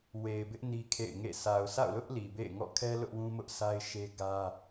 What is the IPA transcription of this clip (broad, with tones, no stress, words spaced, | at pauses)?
we˨ɪ̯bɪ˦ʔ ni˦kʰḛ˦˨ɪ̯ŋḛ˦˨ sʰa˨ʊ̯sa̰˦˨ʊ̯lʊ˦ʔ li˨bḛ˦˨ɪ̯ ŋɔ̰˦˨kʰɛ˦ lʊ˦ʔwũ˦mʊ˦ʔsa˦ɪ̯ ʃe˦ɡä˦